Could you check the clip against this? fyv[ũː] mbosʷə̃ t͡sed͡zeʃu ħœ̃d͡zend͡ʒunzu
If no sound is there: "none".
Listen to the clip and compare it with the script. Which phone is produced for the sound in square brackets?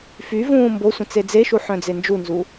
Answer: ũː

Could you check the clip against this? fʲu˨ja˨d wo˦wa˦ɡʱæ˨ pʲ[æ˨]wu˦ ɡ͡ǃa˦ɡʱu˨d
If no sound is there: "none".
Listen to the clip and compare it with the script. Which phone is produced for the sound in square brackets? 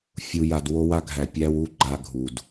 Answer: æ˦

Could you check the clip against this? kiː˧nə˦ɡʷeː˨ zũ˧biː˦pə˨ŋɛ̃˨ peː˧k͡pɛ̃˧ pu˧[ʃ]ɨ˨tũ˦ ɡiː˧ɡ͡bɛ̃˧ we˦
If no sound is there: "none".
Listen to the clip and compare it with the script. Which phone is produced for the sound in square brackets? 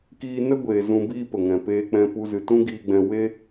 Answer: z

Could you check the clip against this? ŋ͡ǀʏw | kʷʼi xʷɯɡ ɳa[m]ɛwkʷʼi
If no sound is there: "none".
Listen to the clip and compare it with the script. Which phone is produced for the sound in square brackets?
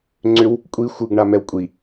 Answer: m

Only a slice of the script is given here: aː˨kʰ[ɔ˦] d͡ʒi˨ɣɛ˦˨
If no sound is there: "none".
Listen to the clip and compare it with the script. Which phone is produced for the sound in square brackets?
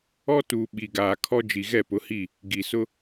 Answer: ɔ˦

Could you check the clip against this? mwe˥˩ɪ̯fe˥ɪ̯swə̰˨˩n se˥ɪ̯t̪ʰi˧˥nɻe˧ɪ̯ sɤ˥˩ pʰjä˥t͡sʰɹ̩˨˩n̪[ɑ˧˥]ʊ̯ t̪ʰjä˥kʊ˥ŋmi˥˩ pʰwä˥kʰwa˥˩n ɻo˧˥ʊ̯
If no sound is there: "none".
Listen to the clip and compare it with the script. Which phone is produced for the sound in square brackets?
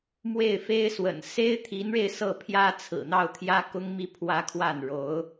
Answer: ɑ˥˩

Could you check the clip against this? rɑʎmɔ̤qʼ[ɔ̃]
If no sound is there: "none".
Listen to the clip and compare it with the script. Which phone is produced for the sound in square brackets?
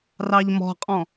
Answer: ɔ̃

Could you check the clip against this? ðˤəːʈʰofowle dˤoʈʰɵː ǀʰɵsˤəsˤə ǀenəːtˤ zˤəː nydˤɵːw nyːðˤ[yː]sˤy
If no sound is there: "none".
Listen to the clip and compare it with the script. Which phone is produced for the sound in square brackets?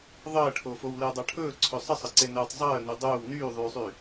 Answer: yː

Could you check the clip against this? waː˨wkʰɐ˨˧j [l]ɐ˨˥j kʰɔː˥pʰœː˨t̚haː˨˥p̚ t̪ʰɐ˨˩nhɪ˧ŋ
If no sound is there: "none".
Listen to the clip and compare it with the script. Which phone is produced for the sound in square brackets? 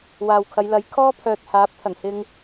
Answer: l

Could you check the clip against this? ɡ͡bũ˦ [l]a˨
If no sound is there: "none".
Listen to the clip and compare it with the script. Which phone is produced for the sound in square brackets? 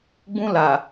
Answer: l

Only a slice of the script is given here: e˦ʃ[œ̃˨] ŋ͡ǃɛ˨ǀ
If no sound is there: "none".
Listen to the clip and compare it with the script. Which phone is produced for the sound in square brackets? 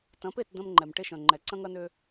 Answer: œ̃˨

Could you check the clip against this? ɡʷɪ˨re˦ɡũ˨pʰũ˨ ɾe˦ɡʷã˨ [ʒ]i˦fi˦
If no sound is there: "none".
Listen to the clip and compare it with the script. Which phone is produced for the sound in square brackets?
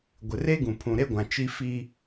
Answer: t͡ʃ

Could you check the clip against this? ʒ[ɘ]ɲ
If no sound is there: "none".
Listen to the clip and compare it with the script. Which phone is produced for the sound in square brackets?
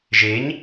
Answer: e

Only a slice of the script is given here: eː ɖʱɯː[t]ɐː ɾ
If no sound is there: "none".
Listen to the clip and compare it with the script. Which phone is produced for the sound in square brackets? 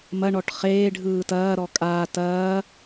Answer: t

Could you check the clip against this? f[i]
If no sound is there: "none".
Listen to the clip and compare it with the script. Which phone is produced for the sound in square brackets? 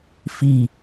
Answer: i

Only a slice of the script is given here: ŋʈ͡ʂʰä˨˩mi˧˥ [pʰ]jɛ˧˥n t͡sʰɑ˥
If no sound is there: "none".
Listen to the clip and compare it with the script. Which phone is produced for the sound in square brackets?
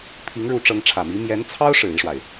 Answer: m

